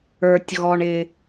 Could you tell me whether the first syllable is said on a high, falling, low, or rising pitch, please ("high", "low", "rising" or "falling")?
low